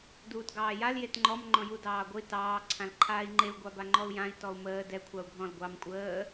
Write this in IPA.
d uː t ɡ ɑː j a l j e t ŋ͡ǃ ɔ m ŋ͡ǃ ɔ̃ j u d ɑː ɡʷ ə i̯ t ɑː ǀʰ ã l ǃʰ aː i̯ ŋ͡ǃ e u̯ ɡʷ ɑ b a ŋ͡ǃ ɔ u̯ j ã i̯ t ɔ u̯ m əː d ɛ kʷʰ ɑ u̯ ɡʱ ɔ̃ l ɡʷ ɑ m kʷʼ əː

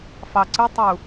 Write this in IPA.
f ɑ ǀ ɯ tˤ u

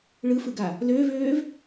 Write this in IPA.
ɭ ɯ f ɯ ɡ a | l øː v øː v

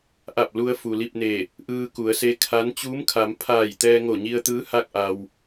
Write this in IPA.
ʔ a˧˩ p̚ l u˧ ə̯ f u˩ l i˥˨ p̚ n e˧˩ | ʔ ɯː˧ k u˩˧ ə̯ s e˧˥ kʰ a˧˥ n t͡ɕ uː˧˥ m kʰ a˩˧ m pʰ aː˧˩ j t̪ ɛː˧ ŋ o˧˩ ɲ i˧ ə̯ t̪ ɯː˧˥ h a˥˨ k̚ ʔ a˩ w

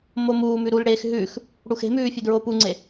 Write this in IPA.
m o m uː m ʉ ɾ u l ɽ eː x ɦ ʉ x | ɽ u x e̤ m ʉː fʲ ʉ d ɹ o p u ŋ͡ǀ e

